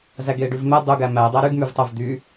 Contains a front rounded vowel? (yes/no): yes